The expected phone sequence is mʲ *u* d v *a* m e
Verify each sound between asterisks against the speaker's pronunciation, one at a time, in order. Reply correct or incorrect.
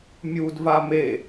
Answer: correct, correct

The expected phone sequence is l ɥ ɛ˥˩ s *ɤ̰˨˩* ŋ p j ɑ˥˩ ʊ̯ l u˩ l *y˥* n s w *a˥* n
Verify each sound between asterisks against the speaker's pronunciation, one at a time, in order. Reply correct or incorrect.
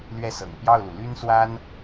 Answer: correct, correct, correct

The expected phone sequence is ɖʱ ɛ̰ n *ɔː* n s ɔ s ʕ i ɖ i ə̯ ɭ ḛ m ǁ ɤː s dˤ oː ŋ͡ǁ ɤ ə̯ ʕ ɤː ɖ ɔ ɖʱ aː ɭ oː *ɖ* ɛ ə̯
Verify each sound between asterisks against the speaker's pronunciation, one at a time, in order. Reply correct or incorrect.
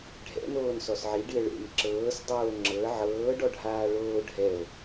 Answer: incorrect, incorrect

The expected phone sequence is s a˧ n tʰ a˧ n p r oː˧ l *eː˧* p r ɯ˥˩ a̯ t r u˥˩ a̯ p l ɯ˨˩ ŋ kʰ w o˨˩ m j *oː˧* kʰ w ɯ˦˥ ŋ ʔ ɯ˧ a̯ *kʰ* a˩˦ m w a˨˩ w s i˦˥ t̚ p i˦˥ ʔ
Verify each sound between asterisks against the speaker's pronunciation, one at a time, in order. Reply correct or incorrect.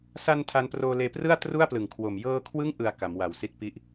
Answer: correct, incorrect, incorrect

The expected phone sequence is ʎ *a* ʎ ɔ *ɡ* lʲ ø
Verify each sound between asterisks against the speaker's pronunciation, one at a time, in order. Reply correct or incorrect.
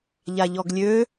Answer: correct, correct

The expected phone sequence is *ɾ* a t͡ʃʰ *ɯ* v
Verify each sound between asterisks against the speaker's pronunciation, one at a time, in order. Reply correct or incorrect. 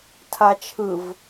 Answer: incorrect, correct

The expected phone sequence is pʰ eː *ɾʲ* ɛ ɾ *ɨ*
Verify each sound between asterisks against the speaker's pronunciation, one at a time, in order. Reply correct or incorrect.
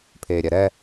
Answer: correct, incorrect

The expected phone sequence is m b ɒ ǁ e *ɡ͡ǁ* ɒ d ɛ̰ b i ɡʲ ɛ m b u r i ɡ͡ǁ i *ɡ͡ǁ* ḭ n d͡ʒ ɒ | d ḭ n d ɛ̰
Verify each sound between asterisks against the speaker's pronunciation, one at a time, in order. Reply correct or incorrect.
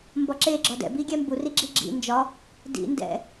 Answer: correct, correct

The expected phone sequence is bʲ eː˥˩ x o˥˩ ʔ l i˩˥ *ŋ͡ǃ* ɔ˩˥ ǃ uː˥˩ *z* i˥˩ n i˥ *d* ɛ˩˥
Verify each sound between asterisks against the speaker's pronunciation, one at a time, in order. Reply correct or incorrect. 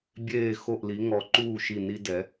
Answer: incorrect, incorrect, correct

